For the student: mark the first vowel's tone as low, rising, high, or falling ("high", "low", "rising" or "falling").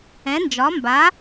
rising